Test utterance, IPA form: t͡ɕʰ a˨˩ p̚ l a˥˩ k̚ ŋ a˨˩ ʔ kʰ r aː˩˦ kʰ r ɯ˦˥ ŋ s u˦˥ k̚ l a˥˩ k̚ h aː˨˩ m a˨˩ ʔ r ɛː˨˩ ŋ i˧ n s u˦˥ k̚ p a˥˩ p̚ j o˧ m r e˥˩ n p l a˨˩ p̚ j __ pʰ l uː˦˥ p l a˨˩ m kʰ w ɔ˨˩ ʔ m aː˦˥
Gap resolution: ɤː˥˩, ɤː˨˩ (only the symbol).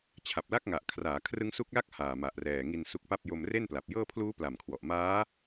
ɤː˥˩